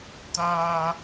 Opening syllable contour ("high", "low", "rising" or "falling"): high